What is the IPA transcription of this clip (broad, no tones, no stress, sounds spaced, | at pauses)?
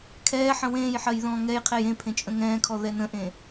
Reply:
kʰ ɛː ħ ə̃ w ẽː j ħ ɜ j ð ɔ̃ː ŋ ɛ j qʰ e j ẽ pʰ ẽ t͡ʃʼ ə̃ ŋ ɛ̃ː kʰ ɔ ð ɛ n ə̃ ʔ ẽ